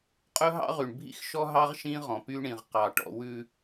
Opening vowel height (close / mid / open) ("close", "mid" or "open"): mid